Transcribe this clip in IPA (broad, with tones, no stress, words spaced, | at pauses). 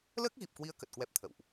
ləː˦˥k̚ɣi˨˩p̚kwi˨˦ə̯ kə˨˩t̚kwɛ˦˥p̚ t̪ʰə̰˧˨wʔ